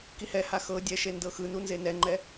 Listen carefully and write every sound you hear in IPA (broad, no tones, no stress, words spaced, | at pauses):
kihɛha xɤdʲɛʃe ndɤxɯnunze nɛŋ͡ǃɛ